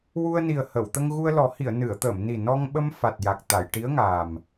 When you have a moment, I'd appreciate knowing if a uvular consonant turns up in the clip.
no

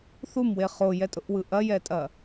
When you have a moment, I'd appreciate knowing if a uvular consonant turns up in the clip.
yes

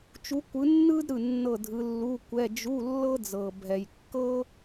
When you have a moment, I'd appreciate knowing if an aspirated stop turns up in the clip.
no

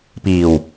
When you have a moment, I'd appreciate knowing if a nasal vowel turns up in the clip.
no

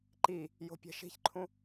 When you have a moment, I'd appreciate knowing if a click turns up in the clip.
yes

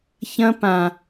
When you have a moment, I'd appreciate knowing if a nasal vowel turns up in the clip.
yes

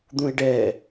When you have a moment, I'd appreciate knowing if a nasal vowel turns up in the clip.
yes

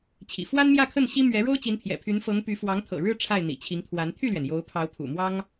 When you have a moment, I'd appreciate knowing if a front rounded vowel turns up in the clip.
yes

